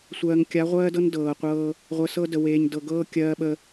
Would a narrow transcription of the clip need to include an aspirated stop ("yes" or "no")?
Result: no